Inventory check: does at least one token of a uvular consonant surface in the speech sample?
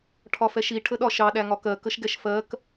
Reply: no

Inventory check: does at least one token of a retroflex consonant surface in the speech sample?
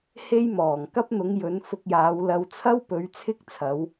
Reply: no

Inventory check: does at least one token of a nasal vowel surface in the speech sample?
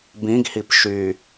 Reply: yes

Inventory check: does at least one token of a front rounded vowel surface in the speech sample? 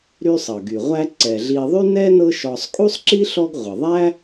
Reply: yes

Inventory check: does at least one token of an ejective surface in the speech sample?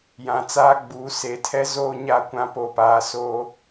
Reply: no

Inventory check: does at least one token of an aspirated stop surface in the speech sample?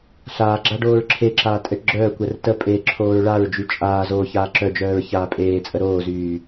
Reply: yes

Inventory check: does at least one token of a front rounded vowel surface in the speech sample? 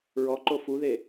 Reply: no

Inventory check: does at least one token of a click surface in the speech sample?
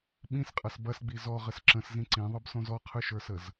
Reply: yes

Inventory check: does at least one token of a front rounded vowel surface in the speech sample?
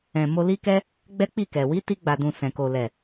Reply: no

